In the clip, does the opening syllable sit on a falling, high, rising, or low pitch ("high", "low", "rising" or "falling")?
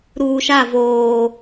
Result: low